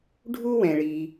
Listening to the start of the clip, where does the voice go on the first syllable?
high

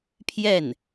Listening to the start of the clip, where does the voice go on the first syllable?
falling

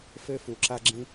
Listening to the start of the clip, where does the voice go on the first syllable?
high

